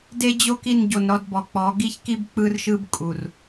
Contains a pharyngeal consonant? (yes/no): no